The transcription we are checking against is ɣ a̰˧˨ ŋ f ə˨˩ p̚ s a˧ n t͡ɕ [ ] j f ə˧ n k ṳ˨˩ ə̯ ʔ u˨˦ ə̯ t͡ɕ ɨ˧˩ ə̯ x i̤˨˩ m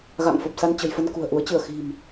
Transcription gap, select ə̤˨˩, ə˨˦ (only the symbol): ə̤˨˩